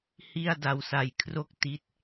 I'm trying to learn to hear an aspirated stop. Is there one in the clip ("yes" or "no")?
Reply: yes